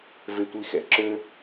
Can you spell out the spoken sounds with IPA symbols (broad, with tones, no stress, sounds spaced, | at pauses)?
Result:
v e˧ tʷ i˧ x ɛ̰˨ ǁ ø˦